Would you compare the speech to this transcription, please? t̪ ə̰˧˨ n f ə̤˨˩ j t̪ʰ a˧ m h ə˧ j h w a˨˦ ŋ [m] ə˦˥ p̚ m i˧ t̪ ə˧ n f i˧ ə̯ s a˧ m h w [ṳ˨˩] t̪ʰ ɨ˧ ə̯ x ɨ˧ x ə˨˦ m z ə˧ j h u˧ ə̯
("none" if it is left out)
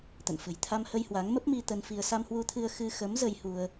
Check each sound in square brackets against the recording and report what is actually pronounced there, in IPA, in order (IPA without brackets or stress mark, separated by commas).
m, u˧